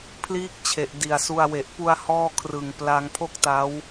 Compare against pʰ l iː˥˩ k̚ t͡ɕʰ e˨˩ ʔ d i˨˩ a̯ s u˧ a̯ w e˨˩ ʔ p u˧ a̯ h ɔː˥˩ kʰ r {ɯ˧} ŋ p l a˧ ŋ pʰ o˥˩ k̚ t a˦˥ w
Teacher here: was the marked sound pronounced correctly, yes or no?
no